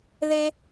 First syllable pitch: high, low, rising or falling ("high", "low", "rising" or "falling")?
high